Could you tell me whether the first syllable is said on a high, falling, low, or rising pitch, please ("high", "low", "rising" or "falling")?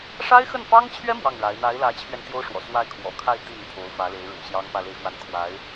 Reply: high